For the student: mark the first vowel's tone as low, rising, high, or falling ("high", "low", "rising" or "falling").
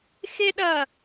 high